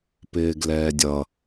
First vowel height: high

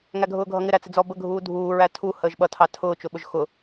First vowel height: low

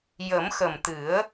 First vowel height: mid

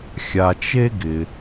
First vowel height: low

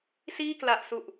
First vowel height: high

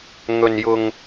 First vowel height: mid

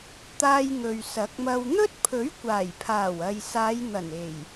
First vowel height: low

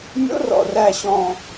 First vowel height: mid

